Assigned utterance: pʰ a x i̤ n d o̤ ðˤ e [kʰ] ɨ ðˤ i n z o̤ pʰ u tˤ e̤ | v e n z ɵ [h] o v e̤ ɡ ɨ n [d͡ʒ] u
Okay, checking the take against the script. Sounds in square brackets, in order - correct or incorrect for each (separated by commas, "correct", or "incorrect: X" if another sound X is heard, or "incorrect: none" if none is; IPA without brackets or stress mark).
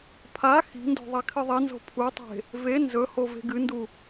correct, correct, incorrect: d